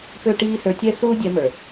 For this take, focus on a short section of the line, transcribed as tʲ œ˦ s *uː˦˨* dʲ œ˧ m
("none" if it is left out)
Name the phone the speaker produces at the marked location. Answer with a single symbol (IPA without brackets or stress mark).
uː˦